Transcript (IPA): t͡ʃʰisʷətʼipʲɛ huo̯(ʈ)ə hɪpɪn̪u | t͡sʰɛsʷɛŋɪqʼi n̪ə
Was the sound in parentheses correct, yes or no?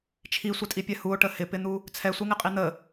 yes